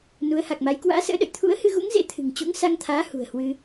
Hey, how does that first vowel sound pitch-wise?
rising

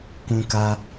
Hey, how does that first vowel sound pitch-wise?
high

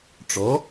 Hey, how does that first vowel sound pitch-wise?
rising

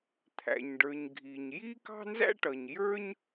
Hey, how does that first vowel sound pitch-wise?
low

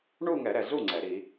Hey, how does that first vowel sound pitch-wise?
falling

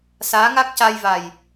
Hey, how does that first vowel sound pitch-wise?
rising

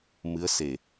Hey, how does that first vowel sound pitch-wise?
rising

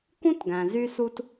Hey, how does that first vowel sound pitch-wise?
high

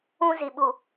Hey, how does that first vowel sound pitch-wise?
high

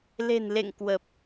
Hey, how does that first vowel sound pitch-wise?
low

